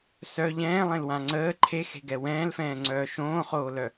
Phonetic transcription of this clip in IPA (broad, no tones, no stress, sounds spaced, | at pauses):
s œ ʎ ɛ̃ː lˠ ẽ l w ã ŋ͡ǀ əː ǃʰ e x e̤ ɡ ɛ w ɛ̃ː l f ɛ̃ː ŋ͡ǀ œː ʃ õː χ oː l œ